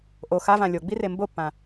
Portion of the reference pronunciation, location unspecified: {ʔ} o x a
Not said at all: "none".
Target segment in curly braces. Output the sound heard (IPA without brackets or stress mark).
ʔ